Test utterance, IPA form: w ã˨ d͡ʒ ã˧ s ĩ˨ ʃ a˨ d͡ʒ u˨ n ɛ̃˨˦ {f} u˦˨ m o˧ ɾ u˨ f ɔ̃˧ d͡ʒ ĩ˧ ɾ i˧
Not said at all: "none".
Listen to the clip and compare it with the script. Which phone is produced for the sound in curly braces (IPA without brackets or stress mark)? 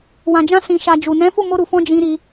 f